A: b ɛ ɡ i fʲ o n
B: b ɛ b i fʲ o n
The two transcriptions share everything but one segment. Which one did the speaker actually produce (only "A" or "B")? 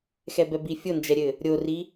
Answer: B